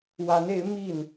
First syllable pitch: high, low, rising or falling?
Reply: rising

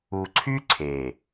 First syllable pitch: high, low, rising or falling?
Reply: low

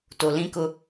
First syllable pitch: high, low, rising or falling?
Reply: low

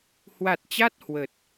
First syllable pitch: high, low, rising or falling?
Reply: low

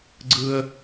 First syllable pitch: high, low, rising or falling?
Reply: high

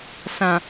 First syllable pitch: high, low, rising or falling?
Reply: low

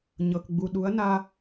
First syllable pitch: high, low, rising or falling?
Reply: low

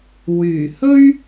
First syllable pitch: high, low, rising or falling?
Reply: low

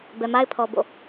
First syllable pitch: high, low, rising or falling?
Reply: low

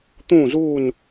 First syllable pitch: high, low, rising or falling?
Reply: falling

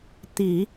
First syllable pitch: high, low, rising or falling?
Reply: low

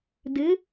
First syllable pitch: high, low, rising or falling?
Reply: rising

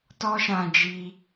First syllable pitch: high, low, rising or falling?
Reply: high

